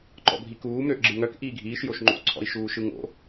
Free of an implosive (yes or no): yes